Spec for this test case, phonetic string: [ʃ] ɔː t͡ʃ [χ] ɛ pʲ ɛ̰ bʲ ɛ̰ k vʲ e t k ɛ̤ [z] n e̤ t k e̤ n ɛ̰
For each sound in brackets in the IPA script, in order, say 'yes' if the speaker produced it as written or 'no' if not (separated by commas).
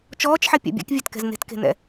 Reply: no, no, yes